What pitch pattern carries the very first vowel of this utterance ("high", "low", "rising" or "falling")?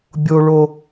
low